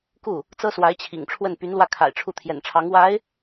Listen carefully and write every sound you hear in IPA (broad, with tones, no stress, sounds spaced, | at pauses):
k u˥˩ | t͡s ɤ˥ s w a˧˥ ɪ̯ t͡ɕʰ ḭ˨˩ ŋ ʈ͡ʂʰ w ə˥˩ n p y˧˥ n l w ä˥˩ kʰ a̰˨˩ ɪ̯ ʈ͡ʂʰ u˥˩ t̪ʰ j ɛ̰˨˩ n ʈ͡ʂʰ ɑ˧˥ ŋ w a˧˥ ɪ̯